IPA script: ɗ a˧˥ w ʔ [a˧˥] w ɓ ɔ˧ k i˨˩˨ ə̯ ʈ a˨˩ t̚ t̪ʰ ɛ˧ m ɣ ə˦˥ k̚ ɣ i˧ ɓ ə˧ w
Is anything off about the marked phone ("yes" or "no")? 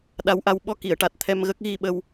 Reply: yes